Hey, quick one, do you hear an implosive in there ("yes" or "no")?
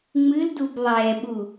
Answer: yes